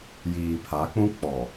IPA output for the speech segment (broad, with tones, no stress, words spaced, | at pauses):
jiː˨pʰa˨˦k͡pũ˦ k͡pɔ˨